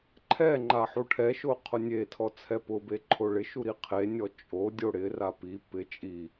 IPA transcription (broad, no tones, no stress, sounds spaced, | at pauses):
ǃʰ ɛ ŋ͡ǃ a ħ u ʈʰ ɛ ʃ o qʰ ʊ nʲ e tʰ ɔ t͡sʰ ɛ p ʊ b e ǃʰ o ɭ ɪ ʃ u ɾ i qʰ e nʲ ɔ t͡ʃʼ o dʲ o ɽ ɪ r a p i p ɪ t͡ʃʼ i